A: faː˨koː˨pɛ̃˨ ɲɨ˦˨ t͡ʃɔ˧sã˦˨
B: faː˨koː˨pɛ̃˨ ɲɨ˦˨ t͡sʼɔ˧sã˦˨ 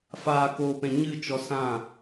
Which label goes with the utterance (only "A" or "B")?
A